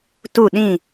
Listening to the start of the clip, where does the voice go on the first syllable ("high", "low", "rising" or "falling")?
falling